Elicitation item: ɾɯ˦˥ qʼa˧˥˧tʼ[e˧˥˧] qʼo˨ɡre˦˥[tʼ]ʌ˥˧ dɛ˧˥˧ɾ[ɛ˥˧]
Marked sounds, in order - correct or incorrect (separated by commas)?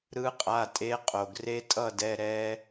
incorrect, correct, incorrect